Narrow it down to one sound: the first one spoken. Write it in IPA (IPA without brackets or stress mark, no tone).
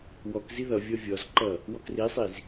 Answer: w